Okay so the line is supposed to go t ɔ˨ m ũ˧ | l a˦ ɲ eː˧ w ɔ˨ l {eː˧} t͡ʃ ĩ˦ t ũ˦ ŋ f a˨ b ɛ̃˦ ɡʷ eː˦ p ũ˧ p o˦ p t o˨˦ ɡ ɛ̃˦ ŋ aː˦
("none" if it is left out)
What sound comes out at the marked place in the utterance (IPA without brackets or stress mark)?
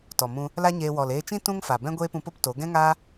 eː˧